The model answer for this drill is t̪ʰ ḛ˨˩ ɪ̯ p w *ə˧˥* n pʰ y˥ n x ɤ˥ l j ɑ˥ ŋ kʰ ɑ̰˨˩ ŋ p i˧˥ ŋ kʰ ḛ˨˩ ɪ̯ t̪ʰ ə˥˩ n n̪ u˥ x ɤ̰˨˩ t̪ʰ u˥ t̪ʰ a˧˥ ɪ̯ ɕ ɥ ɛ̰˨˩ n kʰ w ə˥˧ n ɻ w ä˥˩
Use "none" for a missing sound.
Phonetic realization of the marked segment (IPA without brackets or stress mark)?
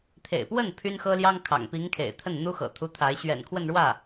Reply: ə˥˩